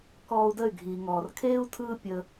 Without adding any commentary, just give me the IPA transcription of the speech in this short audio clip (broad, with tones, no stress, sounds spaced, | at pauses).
k ɔː˧ u̯ d ə˦˨ y̯ ɡʱ iː˨ ŋ ɔː˨ r kʰ eː˦ u̯ tʰ ɯː˦ pʲ ə˧